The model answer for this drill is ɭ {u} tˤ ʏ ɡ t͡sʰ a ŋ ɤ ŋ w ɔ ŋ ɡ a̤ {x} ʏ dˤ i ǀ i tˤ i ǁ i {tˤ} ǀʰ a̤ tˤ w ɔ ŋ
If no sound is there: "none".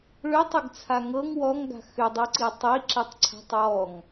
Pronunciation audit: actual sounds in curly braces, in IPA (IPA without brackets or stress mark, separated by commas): ʏ, x, tˤ